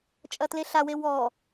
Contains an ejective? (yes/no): yes